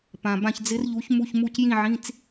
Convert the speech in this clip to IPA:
p ã˨ b ã˥˧ ç d͡z ɪ˦˥ r ʎ u˨˥ ç m u˧˥˧ ç m u˥˧ c j ĩ˥˧ ʕ ĩ˧˥˧ t͡s

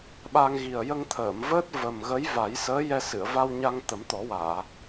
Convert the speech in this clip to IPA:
ɓ a˧ ŋ ɣ i˨˩ ə̯ j ə˧ ŋ t̪ʰ əː˨˩˨ m v əː˦˥ t̚ v ə˨˩ m ɣ ə˧˥ j v a˨˩˦ j s əː˧˥ j ɛ˧ s ɨ˨˩˨ ə̯ v a˧ w ɲ a˧ ŋ t̪ ə˨˩˦ m t̪ ɔ˨˩˦ w aː˨˩˨

